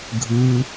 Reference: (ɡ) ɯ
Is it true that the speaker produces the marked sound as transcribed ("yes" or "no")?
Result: no